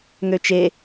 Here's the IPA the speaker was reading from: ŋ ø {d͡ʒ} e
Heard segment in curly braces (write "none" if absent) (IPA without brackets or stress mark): t͡ʃ